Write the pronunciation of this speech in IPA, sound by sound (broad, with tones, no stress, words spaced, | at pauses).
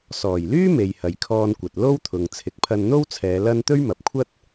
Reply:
sɔː˨˩jlyː˥ me˨jhɐ˨jkʰɔː˧nkʷɐ˨t̚ lo˥wt̪ʰʊ˨ŋ t͡sʰɪ˨˥k̚pʰɐ˧nn̪o˥wt͡sʰɛː˨˧ lɐ˥n t̪ɵ˥ɥmɐ˨p̚kʷʰɐ˥t̚